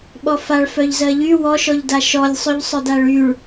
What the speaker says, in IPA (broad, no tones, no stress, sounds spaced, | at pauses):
ɓ ɔ f a ɭ f œ ʎ z ɜ ʎ y w ɔ ʃ ɔ ʎ d a ʃ ɔ lʲ sˤ ʉ ʎ sˤ œ d a ɭ y ɭ